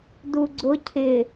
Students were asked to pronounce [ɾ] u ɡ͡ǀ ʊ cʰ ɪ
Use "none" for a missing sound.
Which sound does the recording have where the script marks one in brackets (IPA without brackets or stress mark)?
d